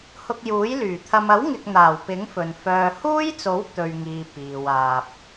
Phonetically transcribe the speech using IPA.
h ʊ˧ k̚ j uː˨˥ j l yː˨˩ t̪ʰ ɐ˧ m ɐ˨˥ w ŋ ɪ˨ k̚ n̪ aː˨˩ w p ɪ˨˥ ŋ f ɵ˨ n f œː˨ h uː˥ j t͡s o˨˥ w t̪ ɵ˧ ɥ ŋ iː˨ p iː˨ w aː˧ p̚

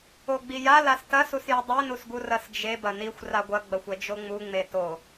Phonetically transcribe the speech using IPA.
o ɡ͡b i j a l a s t ɐ s u s j i dˤ i n u s ɡ u r ɐ s d͡ʒ e b ɐ n i xʷ r a ɡʷ ɐ ɡ͡b ɐ xʷ ɛ d͡ʒ o ŋ͡m u ŋ͡m e t o

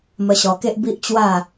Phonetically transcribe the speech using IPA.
m ə˧ ɕ ɔ˧ k e˦ ʔ b i˦ ʔ t͡ɕ w a˥˧

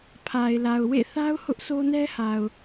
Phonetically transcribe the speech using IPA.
pʰ a˨ ɪ̯ l a˨ ʊ̯ w ḛ˦˨ θ a˦ ʊ̯ h ʊ˦ ʔ s o˦ n ɛ˦ h a˨ ʊ̯

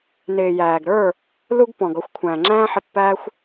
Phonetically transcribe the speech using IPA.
n ɪː˨ j æː˨ ɡ ɾ ə˞˦˨ | l u˧ ɡ p ɔ̃˨ ɡ ɔ˧ xʷ kʷʰ æ̃ː˨ ŋ͡ǁ æ̃ː˦ ħ ɪ˧ pː æː˦ xʷ

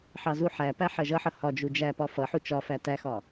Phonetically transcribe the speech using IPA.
ħ ɑ z u ħ æ p æ ħ ɜ ʒ ʌ ħ ʌ h ɒ d͡ʒ u d͡ʒ æ p ɒ f ʌ ħ u t͡ʃ ɒ f æ t æ x ɒ

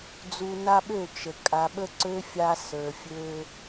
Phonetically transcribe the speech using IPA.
d͡z u˨ n a˦ ɓ ø˦˨ t͡ʃ ə˨ kʼ a˨ ɓ ə˦ ǀ ø˦ fʲ a˦ s ə˞˨ fʲ ø˦

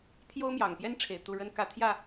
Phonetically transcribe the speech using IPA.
t̪ʰ j o˥ ʊ̯ m j ɑ˨˩ ŋ p j ɛ˥ n ʈ͡ʂʰ e˨˩ ɪ̯ t̪ u˥˩ ɻ ə˥ n k ä˥ t̪ʰ j ä˥˩

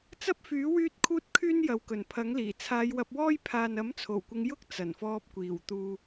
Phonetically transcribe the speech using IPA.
t͡s ɐ˥ p̚ f yː˨˥ w yː˥ t̚ kʰ uː˥ t̚ kʰ yː˥ n j ɐ˨ w k ɵ˨˩ n pʰ ɐ˨˥ ŋ l iː˨˩ t͡sʰ aː˨˧ j w ɐ˧ p̚ w ɔː˥ j pʰ aː˨ n ɐ˨˥ m t͡sʰ o˨˩ w kʷ ɪ˨˧ ŋ j ʊ˥ k̚ t͡s ɐ˨˩ n f ɔː˧ p̚ kʷ iː˨˩ w t̪ uː˨

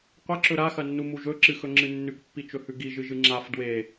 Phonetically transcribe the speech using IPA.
qʷ ɐ ǁ ɵ ɾ a x ɐ nː u m u ʒ ɵ ǁ ɨ x ɵ ŋ͡ǁ ɨ nː ʉ k pː i t͡ʃ ɵ h ʉ ɡ i ʒ ɨ ʒ ɨ ŋ͡ǁ a f d w e

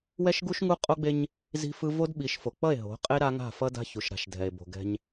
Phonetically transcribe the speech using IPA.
w ɛ˦ ʃ ɡ u˦ ʃ ŋ u˦ qʼ o˦ ɡ͡b e˦ ɲ | z i̤˦ f ɯ˦ v o˦ d ɓ i˨˦ ʃ f o˨ k͡p ʌ˦˨ e̯ ɦ o̤˨˦ qʼ e˦ ɾ a˦ ŋ a̤˦˨ f ʌ˦ d a̤˦ ç u˨ ʃ ɾ a̤˨ ʃ dʱ ɛ˨ e̯ b o̤˨ ɡ ɛ̤˦ ɲ

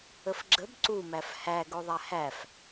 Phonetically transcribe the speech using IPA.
ə f ɡ͡ǁ ə b ǀ u m æ f h æ ɡ o ðˤ æ h æ f

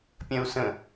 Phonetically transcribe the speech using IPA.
pʲ ɐ̃ u̯ s ə̃

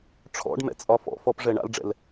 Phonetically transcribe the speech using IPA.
ʈ͡ʂʰ ɔ̰ ɖ m ɛ̰ t͡sʼ ɒ f ɔ̰ f ɔ p ʐ ɛ ɳ a̰ l ɖ͡ʐ ɛ̰ l

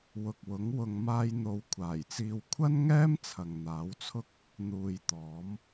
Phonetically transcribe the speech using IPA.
w ʊ˨ k̚ w ʊ˨˥ ŋ w ʊ˨ ŋ m aː˧ j n̪ o˨˧ w kʷʰ aː˨˩ j t͡s iː˧ w kʷʰ ɐ˥ n ŋ ɛː˥ m t͡sʰ ɐ˨ ŋ n̪ aː˨˥ w t͡sʰ ʊ˥ k̚ | n̪ uː˨ j t̪ ɔː˨˥ m

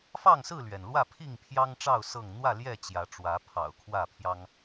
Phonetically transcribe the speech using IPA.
f ɑ˥˨ ŋ s ɹ̩˥˨ l ɥ ɛ˩ n l w ä˥˨ pʰ i˥˨ ŋ pʰ j ɑ˦ ŋ ʈ͡ʂ ɑ˥˨ ʊ̯ s ɤ˥˨ ŋ n̪ w ä˥˨ l j ɛ˥˨ t͡ɕ j ä˨˦ ʈ͡ʂ w ä˨˦ pʰ ɑ̰˨˩ ʊ̯ kʰ w ä˥˨ pʰ j ɑ˦ ŋ

